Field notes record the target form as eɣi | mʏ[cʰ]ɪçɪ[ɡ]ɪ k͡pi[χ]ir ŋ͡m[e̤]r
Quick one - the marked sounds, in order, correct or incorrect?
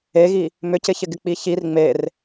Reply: incorrect: c, correct, incorrect: ç, incorrect: e

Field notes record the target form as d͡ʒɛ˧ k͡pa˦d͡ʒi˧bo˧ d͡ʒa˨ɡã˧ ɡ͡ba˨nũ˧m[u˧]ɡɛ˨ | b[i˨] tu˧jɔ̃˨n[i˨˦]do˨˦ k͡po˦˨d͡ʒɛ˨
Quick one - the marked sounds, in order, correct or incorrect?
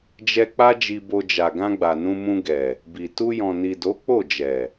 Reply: incorrect: ũ˧, correct, incorrect: i˨

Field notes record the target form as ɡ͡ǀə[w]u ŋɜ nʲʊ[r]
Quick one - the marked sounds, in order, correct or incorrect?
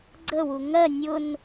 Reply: correct, incorrect: n

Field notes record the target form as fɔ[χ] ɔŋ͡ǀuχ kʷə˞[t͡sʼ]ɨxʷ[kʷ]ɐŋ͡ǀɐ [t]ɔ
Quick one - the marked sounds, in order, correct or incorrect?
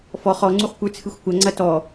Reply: correct, incorrect: t͡sʰ, correct, correct

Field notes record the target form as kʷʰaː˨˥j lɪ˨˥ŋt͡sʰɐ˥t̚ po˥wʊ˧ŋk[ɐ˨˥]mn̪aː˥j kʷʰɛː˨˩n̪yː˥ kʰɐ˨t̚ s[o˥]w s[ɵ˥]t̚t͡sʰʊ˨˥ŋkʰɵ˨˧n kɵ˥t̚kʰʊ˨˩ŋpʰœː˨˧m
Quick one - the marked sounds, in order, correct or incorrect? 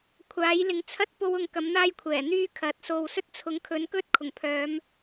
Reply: correct, incorrect: o˨, correct

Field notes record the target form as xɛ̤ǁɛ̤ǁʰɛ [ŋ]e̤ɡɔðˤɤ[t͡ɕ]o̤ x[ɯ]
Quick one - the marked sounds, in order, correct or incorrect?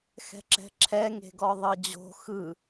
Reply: correct, incorrect: d͡ʑ, correct

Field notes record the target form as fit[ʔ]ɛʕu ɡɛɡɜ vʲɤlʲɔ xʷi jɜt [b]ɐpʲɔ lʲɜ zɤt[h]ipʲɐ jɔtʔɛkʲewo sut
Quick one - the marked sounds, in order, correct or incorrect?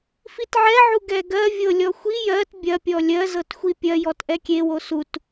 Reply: incorrect: ʕ, incorrect: bʲ, incorrect: xʷ

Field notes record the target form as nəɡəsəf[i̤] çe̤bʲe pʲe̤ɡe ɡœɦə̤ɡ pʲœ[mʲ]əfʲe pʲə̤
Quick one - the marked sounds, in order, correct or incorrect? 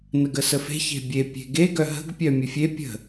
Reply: incorrect: e̤, correct

